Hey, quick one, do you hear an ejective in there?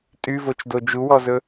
yes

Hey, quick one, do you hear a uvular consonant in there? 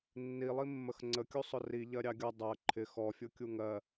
no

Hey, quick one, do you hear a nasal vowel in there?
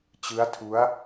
no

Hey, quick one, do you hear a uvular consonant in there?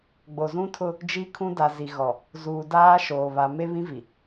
no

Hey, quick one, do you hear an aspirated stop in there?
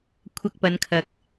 yes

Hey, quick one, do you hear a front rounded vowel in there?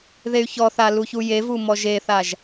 yes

